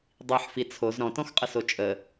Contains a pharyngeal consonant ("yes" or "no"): yes